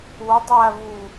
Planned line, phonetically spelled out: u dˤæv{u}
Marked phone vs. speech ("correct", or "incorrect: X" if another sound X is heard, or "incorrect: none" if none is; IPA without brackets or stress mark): correct